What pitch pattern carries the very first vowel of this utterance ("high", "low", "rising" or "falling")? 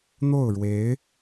falling